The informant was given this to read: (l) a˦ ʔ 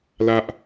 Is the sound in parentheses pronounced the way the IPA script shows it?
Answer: yes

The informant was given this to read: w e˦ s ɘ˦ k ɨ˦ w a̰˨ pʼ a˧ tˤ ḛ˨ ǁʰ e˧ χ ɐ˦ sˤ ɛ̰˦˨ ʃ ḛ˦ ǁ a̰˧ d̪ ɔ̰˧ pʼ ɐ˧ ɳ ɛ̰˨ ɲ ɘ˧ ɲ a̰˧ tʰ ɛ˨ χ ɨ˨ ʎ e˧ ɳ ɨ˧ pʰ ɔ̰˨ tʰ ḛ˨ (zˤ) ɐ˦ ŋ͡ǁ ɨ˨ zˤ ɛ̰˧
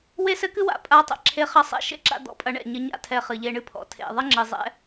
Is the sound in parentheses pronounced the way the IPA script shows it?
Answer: no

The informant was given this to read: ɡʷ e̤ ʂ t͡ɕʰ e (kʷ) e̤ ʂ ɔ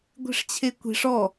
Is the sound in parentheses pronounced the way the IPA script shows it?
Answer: yes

